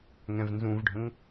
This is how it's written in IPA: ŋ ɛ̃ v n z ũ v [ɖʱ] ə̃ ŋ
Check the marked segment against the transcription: correct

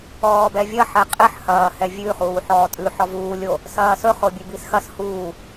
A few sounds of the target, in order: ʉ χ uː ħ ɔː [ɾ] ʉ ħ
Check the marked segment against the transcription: incorrect: tʼ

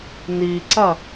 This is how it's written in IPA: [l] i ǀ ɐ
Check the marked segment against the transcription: incorrect: n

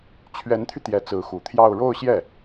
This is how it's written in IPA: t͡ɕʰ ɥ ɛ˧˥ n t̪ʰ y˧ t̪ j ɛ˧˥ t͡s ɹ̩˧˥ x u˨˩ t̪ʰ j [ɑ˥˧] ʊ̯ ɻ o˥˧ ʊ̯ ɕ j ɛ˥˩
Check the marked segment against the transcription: correct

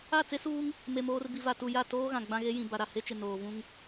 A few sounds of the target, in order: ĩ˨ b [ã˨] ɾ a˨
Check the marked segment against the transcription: incorrect: a˨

